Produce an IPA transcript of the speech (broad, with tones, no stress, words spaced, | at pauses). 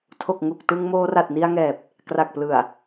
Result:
tʰo˨˩k̚ŋu˨˩k̚tɯ˧ŋ moː˧ra˨˩t̚ni˧a̯ŋɛː˨˩p̚ | kra˨˩k̚plɯ˨˩a̯